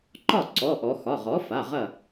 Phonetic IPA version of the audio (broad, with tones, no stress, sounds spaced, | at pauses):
ǃ ɒ˥˩ ǀ ɔ˩˧˩ ʔ ɔ˩˧ x ɒ˩˧˩ ʁ ɔ˩˥ f a˩˧˩ ʁ ɐ˥˩